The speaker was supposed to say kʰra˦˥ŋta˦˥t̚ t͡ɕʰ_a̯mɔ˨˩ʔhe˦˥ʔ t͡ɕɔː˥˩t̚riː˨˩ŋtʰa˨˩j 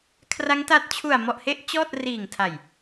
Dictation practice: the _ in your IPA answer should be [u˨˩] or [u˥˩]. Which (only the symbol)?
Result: u˨˩